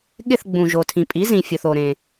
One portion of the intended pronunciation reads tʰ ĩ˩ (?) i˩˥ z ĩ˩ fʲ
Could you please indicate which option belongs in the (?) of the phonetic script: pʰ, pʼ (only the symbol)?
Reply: pʼ